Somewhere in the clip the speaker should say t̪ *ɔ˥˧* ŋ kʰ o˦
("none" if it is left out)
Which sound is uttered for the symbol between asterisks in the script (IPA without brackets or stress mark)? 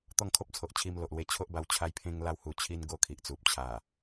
ɔ˥˧